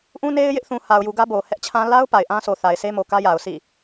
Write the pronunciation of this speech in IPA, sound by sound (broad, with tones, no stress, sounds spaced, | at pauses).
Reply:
ʔ ũ˦ n e˦ ɪ̯ j ɪ˦ ʔ θ ũ˨ h a˨ ʊ̯ j u˨ ɡ ä˦ b o˨ h ɛ˦ ʔ t͡ɕʰ ã˦ l a˦ ʊ̯ p a˨ ɪ̯ ʔ ã˦ sʰ o˨ θ a˨ ɪ̯ s e˦ m o˨ k ä˦ j a˨ ʊ̯ s ḭ˦˨